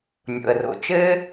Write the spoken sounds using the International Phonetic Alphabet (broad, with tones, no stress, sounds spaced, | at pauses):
nʲ o̰˩ ə̯ r o̰˩ t͡ʃ ɘ˥